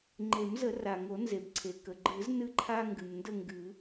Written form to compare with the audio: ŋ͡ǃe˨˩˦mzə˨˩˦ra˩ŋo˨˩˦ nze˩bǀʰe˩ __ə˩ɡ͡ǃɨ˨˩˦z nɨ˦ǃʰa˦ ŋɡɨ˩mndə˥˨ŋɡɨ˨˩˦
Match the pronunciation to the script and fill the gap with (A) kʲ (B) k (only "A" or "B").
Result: B